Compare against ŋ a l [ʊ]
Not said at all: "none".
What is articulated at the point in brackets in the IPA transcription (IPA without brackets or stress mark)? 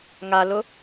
ʊ